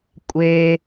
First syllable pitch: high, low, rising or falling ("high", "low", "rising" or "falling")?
low